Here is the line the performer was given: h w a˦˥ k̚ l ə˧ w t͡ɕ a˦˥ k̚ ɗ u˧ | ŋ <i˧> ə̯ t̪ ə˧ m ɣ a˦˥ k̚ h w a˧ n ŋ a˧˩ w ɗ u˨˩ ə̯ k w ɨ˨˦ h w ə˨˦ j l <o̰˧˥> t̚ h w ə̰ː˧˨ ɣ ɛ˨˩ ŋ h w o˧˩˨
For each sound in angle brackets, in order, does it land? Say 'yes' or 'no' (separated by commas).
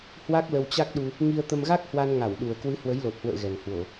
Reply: yes, no